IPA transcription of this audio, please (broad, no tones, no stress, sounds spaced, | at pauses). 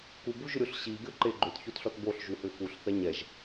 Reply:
k u b u ʒ ʏ ɾʲ o ɬ ɕ i ɡʲ ɔ ǃ e ɡ͡ǃ ʏ t ç o t ɬ ɔ t b o ɬ ʒ u h ʏ x u ɬ θ ɛ ɲ ɛ ʒ